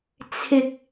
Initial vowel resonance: oral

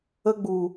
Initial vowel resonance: oral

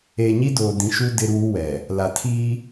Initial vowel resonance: oral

